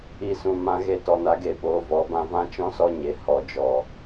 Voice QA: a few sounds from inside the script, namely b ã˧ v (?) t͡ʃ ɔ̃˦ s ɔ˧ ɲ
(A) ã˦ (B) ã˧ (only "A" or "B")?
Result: A